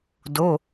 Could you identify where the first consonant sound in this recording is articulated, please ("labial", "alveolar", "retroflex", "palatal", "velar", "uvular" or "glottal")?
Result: alveolar